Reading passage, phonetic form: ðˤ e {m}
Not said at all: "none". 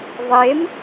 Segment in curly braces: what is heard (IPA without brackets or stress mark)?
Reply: m